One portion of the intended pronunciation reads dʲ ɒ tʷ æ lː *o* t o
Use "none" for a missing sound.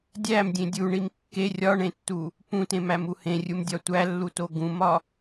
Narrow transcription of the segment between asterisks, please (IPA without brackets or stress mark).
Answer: u